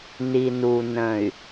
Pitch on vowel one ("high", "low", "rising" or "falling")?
low